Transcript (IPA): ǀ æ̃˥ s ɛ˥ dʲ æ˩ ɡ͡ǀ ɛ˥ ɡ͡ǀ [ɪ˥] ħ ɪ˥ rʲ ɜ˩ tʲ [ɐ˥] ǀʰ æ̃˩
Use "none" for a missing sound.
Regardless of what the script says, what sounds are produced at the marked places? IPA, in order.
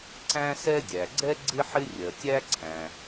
ɪ˥, æ˥

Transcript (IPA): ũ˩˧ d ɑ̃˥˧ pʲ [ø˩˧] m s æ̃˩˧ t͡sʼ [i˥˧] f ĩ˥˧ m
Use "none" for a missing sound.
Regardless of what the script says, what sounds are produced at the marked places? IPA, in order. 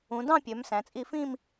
ø˩˧, i˥˧

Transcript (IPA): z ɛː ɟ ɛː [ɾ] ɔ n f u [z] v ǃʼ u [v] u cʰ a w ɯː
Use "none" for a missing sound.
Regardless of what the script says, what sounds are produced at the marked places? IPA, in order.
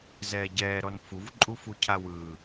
ɾ, none, f

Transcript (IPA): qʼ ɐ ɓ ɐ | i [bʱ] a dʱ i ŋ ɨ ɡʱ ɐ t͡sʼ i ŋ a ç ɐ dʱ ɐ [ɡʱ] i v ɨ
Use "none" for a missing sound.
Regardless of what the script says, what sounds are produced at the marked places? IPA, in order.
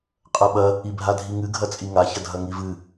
bʱ, ŋ

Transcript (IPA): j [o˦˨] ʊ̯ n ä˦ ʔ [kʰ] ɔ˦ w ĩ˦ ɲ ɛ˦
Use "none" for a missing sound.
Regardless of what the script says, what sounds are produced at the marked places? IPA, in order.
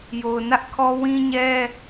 o˨, kʰ

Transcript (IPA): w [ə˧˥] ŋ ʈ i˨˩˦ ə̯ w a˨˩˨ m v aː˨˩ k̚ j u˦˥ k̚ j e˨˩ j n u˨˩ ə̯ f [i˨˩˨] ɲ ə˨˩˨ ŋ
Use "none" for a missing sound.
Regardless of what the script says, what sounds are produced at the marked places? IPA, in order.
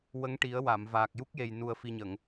ə˧˥, i˨˩

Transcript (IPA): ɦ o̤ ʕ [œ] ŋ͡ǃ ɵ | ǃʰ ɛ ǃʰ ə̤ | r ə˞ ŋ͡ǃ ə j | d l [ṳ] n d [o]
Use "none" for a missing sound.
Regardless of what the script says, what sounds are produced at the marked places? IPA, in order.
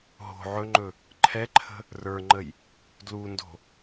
ɵ, u, o̤

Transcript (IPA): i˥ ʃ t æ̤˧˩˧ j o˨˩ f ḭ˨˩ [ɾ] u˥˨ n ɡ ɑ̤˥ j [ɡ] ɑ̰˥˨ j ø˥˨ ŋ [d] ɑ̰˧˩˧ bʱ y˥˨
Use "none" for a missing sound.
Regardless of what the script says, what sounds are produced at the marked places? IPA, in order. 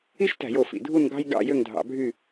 dʱ, ɡ, dʱ

